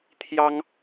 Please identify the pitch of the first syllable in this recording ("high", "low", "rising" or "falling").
high